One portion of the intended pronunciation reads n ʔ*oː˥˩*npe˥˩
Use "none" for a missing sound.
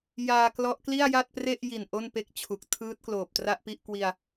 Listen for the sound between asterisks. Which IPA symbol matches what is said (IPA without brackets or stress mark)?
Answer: o˥˩